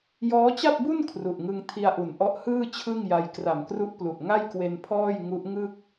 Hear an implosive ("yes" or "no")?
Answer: no